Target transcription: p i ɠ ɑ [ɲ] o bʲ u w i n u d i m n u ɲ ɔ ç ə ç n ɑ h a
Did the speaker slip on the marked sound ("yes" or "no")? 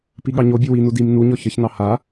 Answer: no